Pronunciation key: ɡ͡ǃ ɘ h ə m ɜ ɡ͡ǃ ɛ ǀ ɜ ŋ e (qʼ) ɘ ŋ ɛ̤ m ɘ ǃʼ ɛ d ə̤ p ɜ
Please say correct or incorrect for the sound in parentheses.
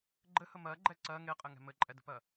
correct